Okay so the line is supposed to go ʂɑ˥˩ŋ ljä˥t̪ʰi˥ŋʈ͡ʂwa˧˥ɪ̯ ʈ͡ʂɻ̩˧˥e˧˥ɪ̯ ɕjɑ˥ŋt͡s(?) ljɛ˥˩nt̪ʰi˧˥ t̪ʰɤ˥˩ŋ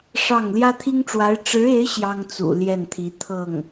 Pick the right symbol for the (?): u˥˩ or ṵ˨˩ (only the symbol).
ṵ˨˩